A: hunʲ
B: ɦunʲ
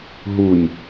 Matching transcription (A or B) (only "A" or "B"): B